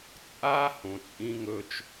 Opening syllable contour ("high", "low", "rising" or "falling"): high